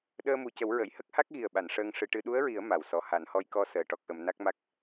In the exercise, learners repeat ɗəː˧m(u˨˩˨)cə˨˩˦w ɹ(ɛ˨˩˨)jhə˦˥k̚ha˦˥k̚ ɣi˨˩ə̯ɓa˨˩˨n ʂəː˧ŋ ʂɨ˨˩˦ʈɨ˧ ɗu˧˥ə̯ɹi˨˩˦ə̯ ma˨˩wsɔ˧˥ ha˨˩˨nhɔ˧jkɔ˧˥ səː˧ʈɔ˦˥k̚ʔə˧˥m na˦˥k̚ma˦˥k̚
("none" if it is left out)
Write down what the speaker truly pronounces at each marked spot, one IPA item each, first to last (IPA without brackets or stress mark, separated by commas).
u˨˩, ə˨˩˨